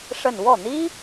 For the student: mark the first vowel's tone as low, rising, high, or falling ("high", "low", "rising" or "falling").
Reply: falling